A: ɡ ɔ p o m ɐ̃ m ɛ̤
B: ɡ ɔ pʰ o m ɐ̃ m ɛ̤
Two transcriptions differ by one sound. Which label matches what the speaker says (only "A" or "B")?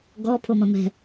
B